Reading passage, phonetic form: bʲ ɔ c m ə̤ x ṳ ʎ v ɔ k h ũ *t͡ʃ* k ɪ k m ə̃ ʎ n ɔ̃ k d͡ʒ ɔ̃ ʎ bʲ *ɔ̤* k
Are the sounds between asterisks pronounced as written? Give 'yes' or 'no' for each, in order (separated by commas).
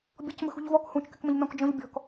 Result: yes, yes